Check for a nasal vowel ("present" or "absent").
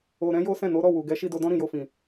present